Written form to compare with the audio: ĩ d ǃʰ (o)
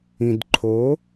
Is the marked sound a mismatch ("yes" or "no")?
no